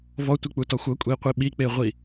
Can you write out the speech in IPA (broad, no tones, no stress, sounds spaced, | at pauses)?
v ɔ tʷ i k͡p u t ɔ xʷ ɤ kʷʼ i qʷ i ɓ i k͡p e ʁʷ i